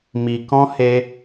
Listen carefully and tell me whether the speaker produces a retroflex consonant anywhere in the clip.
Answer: no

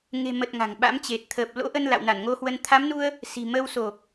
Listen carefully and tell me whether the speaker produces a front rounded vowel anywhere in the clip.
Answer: no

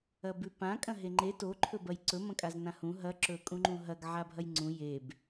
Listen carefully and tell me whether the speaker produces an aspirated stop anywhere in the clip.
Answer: yes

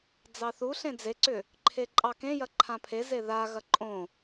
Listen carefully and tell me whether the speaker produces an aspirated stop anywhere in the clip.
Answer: yes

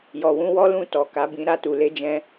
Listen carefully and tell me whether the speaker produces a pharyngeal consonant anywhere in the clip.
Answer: no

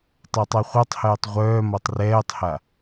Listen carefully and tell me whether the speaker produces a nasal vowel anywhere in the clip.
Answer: no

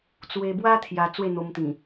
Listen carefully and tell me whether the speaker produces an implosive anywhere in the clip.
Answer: no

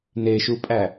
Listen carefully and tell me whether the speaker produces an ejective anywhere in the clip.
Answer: yes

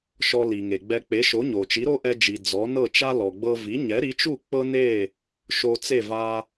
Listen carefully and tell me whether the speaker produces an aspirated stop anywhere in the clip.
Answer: no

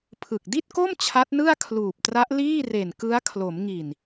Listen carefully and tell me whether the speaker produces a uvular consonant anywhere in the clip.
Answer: no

